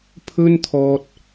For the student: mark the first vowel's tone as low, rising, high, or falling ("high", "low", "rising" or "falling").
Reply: high